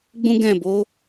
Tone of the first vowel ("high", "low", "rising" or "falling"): high